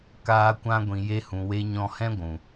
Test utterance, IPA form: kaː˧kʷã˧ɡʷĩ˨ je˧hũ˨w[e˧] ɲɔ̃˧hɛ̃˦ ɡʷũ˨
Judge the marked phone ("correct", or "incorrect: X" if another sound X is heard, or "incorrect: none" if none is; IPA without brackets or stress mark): correct